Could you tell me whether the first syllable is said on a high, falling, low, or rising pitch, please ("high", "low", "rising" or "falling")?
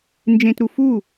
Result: low